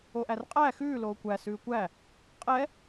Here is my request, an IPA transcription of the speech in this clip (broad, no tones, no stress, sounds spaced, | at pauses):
o ʔ æ r qʼ æː x ʉː l oː kʷ æ s ʉː kʷ æ | qʼ ɛ